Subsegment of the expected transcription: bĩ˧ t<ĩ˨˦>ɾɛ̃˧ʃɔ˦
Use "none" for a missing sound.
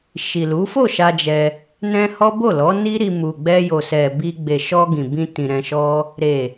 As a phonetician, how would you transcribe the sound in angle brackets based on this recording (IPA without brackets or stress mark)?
ĩ˨